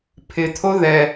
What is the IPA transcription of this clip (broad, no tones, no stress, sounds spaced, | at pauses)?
pʰ ɪ t̪ʰ o ð ɛ